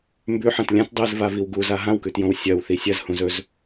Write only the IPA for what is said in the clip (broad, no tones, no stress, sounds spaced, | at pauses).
m b ʉ ħ ɐ̃ t lʲ ã t dˤ ɨ z v a v i w ɡ u z a ɦ ã w k ʉ t j õ w sʲ ɐ w θ i sʲ ɐ z h ũ z ɵ z